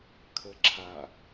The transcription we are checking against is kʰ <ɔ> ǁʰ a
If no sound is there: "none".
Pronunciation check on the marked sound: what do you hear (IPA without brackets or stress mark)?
ə